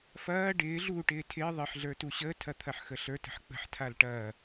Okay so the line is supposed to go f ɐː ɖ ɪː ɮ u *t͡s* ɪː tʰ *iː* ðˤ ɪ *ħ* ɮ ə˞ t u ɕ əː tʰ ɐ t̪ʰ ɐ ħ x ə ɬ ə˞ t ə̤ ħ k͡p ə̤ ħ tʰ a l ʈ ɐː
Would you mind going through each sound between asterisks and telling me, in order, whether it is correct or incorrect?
incorrect: ʈ, incorrect: ɪː, correct

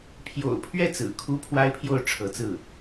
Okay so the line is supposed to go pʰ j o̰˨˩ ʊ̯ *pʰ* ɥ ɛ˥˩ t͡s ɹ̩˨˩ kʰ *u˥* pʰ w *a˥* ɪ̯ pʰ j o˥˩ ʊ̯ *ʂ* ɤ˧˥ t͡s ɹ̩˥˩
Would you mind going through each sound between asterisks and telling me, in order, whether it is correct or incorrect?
correct, correct, correct, incorrect: ʈ͡ʂʰ

